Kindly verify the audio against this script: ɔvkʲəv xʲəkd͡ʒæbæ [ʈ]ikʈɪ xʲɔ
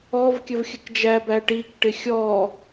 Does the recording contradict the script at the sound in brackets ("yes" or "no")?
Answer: no